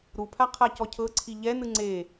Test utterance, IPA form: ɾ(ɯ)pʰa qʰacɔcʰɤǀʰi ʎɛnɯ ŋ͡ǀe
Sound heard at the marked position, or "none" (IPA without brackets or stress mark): u